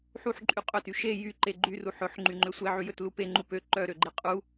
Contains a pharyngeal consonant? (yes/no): yes